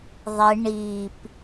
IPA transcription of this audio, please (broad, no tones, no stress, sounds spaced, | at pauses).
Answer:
ðˤ e ɳ i p